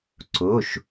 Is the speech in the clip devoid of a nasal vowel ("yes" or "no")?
yes